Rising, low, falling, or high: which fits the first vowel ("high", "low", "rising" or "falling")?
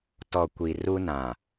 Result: low